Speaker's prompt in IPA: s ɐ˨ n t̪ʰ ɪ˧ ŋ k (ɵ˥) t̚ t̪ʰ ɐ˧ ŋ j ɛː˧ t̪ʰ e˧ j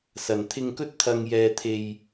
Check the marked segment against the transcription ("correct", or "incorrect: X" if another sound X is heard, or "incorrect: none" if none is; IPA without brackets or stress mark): correct